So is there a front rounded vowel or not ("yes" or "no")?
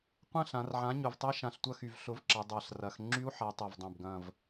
yes